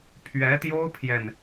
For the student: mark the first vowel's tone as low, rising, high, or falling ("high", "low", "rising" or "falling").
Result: rising